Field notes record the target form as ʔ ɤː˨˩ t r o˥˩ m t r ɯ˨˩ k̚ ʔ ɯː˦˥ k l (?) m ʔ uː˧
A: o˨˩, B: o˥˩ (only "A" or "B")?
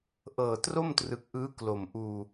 A